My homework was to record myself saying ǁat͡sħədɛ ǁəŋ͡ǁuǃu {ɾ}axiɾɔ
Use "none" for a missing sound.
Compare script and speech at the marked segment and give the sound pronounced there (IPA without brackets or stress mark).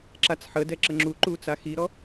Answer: t͡s